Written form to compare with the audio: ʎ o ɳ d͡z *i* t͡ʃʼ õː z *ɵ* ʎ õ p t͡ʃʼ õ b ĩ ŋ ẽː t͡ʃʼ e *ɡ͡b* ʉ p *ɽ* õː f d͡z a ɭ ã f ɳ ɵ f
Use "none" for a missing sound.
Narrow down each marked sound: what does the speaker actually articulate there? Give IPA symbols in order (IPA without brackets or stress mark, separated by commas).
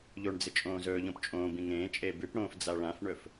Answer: ɨ, ɵː, b, ɽ